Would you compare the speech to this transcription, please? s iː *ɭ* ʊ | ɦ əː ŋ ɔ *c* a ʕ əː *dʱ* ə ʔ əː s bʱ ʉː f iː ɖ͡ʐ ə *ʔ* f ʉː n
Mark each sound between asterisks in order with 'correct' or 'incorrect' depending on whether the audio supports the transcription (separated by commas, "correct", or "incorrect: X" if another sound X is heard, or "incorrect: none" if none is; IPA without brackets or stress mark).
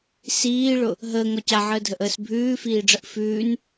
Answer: correct, correct, correct, correct